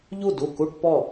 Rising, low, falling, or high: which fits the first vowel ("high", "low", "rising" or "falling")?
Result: falling